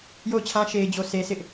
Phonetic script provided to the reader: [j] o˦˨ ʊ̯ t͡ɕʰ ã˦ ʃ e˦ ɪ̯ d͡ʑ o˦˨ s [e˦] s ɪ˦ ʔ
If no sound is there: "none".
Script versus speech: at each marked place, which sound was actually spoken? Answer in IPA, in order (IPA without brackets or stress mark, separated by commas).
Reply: j, e˦